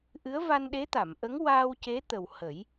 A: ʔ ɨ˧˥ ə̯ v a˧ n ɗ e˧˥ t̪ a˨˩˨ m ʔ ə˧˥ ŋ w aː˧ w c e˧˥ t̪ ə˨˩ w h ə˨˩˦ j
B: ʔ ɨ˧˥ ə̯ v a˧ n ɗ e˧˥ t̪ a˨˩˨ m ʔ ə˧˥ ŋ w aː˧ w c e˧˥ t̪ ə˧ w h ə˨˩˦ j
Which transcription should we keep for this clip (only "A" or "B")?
A